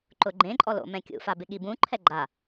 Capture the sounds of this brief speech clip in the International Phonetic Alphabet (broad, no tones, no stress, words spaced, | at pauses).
ǃʊɡ͡ǃẽǃʼɔ lo̰mɛ̃kʲṵfa bɪɠibũǃʰɛ ɡ͡ǃa